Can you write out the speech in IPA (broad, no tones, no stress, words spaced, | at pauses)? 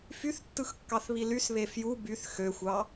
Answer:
fyθtːɯxkːɑθβi lysβe fju byθ xøxʷɑ